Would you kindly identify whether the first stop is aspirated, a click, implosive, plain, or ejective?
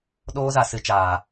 implosive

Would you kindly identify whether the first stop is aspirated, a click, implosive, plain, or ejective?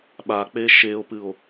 implosive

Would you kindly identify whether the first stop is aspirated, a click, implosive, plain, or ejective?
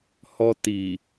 plain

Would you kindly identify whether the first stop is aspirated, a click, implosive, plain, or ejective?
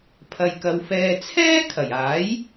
aspirated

